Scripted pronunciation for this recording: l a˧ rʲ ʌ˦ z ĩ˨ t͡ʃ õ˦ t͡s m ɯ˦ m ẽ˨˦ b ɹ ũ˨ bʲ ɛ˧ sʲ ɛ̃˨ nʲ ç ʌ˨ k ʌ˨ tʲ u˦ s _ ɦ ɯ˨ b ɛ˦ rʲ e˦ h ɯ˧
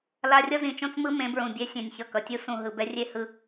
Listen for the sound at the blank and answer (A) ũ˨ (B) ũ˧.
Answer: A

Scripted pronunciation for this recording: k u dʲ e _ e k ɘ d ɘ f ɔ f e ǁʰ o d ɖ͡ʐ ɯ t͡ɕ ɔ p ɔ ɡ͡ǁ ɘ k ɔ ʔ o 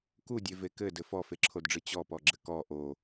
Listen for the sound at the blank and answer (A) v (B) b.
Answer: A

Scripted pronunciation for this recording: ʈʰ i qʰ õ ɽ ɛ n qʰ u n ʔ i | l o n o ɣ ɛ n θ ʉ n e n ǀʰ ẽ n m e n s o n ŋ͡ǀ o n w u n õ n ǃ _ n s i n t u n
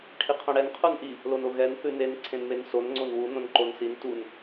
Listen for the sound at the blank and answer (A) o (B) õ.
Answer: A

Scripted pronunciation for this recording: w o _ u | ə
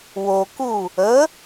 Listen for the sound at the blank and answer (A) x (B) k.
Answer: B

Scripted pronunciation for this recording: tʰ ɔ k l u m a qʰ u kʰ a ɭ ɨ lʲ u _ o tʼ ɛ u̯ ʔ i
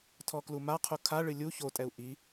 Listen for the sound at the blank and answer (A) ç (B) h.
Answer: A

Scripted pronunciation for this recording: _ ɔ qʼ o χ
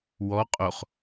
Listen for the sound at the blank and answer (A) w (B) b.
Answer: A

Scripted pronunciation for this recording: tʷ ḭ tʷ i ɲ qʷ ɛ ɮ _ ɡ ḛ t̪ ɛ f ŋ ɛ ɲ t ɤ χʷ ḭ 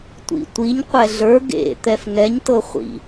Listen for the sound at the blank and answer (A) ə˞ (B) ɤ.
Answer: A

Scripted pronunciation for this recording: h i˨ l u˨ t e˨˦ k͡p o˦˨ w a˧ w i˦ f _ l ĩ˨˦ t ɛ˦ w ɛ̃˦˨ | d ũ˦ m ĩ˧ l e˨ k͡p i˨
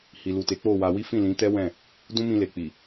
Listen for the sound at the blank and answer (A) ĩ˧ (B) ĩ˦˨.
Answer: B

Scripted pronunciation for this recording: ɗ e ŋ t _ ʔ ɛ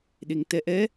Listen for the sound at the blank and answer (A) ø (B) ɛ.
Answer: B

